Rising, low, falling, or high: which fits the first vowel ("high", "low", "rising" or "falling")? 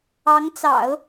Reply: rising